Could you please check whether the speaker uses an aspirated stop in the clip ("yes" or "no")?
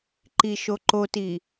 no